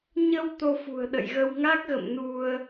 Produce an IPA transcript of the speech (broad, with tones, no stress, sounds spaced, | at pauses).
ɲ ə˧ w t̪ o˧ f ṳ˨˩ ə̯ ɗ ə̰˧˨ j ɣ ə˧ w ŋ a˦˥ k̚ ɣ ə̰˧˨ m n u˧ ə̯